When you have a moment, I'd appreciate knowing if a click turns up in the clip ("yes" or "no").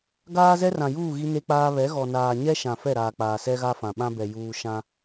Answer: no